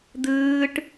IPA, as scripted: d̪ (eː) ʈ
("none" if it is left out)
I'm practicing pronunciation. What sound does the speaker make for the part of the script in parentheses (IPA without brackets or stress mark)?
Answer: ɨː